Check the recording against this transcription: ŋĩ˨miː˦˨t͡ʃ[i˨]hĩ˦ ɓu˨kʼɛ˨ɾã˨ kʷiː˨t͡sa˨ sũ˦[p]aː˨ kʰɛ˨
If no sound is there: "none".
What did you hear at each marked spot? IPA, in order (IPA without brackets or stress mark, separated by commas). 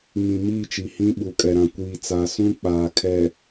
i˨, k͡p